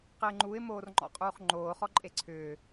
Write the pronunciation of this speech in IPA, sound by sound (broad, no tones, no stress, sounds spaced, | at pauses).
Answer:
q ɪː ŋ͡ǃ u ɪ̯ m oː r ŋ͡ǃ ɔ̰ qʼ uː χ ŋ͡ǃ oː χ ɔ ǃʼ e ǀʰ ʏː